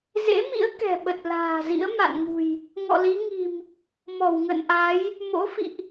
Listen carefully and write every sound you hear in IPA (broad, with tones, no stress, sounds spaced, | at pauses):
z ḛ˧˥ m ḭ˧˥ ə̯ k ɛ̤˨˩ ɓ ə˨˩ t̚ l a̤ː˨˩ z ḭ˧˥ ə̯ m a̰˧˨ n ŋ ṳ˨˩ j | ŋ ɔ̰˧˨ l i˨˦ ŋ i̤˨˩ m | m ɔ˧˩ w ŋ ə̰˧˨ n ʔ a˨˦ j | m o̰˧˥ f ḭ˧˨ ʔ